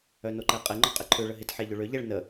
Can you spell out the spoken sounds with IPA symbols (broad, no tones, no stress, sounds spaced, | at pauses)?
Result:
œ n o ǃ ɛ qʼ e ŋ͡ǃ ɔ qʼ ɪ ǃʰ ø ɭ ə ɦ ɪ t ħ e ʎ ʏ ɭ ø ʎ ɛ ɭ n ə